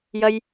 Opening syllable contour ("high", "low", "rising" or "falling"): high